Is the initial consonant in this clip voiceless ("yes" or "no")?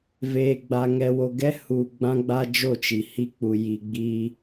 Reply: no